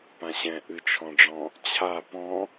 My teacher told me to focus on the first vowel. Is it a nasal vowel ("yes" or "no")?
yes